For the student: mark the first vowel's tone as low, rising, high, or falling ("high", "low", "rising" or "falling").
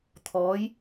rising